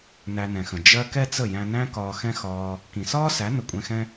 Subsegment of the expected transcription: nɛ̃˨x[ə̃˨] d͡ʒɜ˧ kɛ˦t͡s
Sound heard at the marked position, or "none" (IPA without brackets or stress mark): ə̃˨